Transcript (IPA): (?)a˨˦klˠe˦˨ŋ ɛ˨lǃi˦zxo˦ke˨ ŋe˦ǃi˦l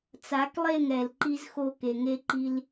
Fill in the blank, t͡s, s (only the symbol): t͡s